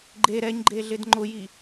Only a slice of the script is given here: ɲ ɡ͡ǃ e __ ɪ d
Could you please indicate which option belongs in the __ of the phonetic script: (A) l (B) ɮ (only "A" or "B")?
B